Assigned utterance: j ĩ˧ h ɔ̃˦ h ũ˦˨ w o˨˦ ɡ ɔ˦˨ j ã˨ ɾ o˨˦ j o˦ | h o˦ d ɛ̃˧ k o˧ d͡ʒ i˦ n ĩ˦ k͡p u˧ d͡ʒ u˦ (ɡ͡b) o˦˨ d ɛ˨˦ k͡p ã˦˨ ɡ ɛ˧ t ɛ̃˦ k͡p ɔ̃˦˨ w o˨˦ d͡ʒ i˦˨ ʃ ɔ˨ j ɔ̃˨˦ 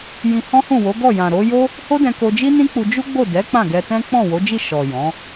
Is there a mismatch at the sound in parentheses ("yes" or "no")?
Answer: no